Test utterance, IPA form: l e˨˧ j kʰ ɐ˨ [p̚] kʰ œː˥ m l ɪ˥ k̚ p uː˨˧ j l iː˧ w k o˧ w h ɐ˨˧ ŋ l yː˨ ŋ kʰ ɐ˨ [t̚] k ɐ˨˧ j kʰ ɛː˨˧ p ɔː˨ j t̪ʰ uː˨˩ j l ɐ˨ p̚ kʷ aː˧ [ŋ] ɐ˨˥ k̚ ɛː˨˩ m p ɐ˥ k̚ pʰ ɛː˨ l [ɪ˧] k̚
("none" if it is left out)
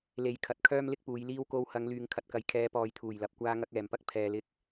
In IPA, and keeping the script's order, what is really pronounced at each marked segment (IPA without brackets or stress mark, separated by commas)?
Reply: t̚, t̚, ŋ, ɪ˧